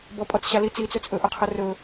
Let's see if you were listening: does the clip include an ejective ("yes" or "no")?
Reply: yes